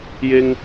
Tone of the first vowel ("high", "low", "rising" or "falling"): high